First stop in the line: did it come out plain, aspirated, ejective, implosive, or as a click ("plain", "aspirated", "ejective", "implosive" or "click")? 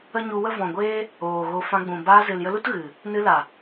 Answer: plain